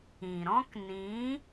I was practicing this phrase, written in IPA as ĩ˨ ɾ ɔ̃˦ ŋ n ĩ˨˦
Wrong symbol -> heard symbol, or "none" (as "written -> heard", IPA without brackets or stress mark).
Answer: ŋ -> k